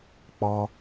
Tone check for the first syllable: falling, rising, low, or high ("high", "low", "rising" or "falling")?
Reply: high